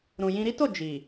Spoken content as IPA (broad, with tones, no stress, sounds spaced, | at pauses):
ɾ ũ˨ j ĩ˧ ɾ i˦ t o˦˨ d͡ʒ i˨